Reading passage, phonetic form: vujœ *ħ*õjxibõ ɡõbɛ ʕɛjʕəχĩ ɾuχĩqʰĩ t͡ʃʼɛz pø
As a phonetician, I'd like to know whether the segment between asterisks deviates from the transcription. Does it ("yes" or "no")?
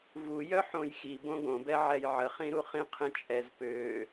no